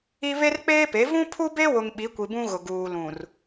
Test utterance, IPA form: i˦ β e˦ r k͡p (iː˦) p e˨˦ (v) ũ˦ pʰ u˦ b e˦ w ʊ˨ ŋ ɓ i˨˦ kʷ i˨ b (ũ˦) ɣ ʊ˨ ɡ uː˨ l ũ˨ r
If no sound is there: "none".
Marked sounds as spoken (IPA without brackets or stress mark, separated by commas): eː˦, v, ũ˦